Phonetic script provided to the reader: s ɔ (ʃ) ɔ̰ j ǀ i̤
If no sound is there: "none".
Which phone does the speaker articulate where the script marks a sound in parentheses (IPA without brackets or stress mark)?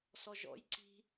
ʒ